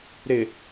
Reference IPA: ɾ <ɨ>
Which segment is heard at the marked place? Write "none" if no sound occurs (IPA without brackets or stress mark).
ɪ